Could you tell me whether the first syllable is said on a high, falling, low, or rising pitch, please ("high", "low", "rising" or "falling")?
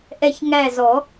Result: falling